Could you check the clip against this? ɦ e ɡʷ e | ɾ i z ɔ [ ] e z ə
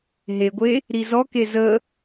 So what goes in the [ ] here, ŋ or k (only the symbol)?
k